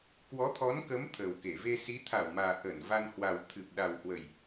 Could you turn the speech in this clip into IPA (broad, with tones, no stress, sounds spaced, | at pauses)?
k w ɔ˨˦ t̪ʰ ɔ˨˦ n k ə˨˦ m t̪ʰ əː˨˩ w k e˧˩ v e˧ s i˨˦ t̪ʰ a˧˩ w m aː˨˩ ʔ ə˧˩ n v a˧ n h w a˨˩ w t̪ʰ ɨ˨˩ p̚ ɗ a˨˩ w h w ə˨˩ j